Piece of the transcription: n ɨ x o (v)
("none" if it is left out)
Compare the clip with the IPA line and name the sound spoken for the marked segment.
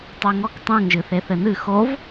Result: v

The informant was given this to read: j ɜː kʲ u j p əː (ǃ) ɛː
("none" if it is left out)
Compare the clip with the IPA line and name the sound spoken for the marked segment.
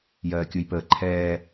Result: ǃʰ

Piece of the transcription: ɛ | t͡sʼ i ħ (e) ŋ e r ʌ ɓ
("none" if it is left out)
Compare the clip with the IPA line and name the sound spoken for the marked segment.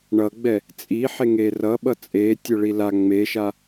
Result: e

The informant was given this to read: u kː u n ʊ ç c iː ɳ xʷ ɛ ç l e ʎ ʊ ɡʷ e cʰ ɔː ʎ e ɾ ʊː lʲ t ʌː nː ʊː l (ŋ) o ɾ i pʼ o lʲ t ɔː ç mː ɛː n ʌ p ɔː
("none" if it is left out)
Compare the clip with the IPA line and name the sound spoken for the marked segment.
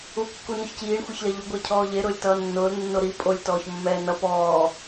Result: nː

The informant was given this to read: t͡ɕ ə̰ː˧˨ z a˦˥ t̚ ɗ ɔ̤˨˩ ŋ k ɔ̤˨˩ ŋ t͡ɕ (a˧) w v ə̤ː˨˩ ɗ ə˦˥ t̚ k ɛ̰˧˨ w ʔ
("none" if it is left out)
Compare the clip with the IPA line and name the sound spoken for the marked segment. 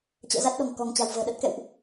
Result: a̤˨˩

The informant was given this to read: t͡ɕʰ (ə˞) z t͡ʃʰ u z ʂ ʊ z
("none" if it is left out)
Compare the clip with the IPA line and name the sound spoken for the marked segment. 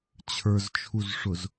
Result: ə˞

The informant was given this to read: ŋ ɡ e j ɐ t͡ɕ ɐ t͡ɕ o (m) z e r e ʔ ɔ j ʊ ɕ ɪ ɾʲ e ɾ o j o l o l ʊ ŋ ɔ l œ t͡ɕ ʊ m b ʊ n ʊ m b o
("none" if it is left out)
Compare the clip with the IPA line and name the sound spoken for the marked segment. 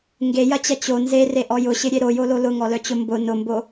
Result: n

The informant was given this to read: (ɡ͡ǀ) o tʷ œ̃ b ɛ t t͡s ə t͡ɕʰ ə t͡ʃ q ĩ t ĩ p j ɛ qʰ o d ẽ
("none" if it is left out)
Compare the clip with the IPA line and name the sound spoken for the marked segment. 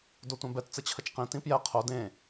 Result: d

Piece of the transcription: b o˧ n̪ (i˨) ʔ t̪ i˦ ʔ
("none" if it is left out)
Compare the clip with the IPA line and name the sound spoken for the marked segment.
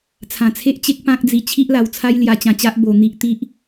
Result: i˦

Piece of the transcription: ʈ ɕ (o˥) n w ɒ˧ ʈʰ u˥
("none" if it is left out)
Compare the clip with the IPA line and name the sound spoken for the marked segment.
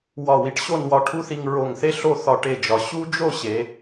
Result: o˥˧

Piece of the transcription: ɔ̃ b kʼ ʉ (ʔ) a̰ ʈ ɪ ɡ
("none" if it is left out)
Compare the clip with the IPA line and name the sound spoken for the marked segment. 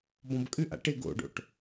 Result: ʔ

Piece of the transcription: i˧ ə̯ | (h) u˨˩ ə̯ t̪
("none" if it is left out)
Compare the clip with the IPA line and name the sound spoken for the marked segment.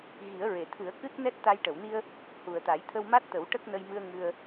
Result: h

